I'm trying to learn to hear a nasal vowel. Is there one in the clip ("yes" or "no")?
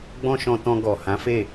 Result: yes